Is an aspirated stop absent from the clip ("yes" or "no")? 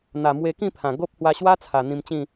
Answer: no